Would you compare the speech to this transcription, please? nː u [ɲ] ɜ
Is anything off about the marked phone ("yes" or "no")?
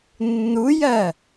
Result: yes